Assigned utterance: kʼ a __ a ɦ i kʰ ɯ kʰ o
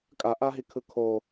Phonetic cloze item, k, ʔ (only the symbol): ʔ